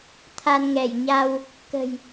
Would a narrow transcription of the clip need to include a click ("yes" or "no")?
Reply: no